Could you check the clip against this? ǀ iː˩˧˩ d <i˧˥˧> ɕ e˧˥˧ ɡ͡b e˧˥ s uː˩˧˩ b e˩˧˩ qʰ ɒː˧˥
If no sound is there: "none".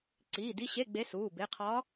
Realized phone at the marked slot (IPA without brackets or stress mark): i˧˥˧